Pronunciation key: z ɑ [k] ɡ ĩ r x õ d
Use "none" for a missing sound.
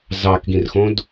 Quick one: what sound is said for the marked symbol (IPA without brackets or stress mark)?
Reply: k